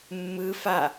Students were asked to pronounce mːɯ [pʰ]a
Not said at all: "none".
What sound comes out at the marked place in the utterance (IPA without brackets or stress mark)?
f